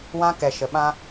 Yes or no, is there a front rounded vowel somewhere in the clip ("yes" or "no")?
no